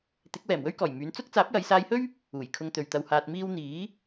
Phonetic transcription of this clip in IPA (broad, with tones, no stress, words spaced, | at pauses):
t̪ɪ˨˥k̚wɛː˨˩mwɵ˥ɥkɔː˨˩j myː˨˧nt͡sʊ˥k̚ t͡saː˨˥p̚jɐ˨˧jsaː˧jhɵ˥ɥ | uː˨˩jkʰʊ˧ŋ t̪ɵ˨ɥt̪ɐ˧whaː˧t̚miː˥w n̪iː˨˥